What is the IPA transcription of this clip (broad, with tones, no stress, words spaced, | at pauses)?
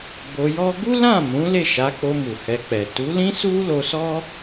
bo˧jɔ˦ ɡu˦lã˦˨ mũ˨˦ le˦˨ʃa˨˦k͡po˧ mu˨hɛ˧k͡pɛ˨ tu˨˦lĩ˦su˦ lo˧sɔ˦